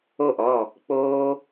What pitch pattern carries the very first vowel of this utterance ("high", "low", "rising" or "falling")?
falling